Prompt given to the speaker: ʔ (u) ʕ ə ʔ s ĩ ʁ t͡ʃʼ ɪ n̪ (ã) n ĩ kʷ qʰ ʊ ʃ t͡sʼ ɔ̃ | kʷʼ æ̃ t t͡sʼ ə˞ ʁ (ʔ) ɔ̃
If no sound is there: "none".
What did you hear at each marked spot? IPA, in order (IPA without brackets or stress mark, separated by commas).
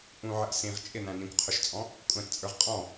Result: ũ, æ̃, qʼ